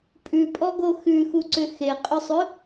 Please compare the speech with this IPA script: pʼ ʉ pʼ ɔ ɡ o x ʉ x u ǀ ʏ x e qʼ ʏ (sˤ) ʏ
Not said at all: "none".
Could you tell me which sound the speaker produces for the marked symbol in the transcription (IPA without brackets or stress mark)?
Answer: sˤ